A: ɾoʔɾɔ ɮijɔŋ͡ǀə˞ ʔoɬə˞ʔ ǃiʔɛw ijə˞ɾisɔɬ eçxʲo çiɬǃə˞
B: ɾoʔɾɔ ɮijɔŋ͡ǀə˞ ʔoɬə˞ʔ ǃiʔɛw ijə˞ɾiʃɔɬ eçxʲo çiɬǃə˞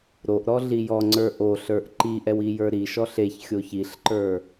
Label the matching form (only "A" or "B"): B